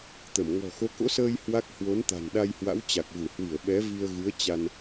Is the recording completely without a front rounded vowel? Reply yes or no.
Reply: yes